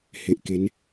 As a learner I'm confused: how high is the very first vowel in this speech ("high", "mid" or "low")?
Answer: mid